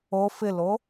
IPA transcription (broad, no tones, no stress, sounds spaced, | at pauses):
o f ɪ l o